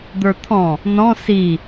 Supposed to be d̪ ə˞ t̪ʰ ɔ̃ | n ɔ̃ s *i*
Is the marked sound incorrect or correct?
correct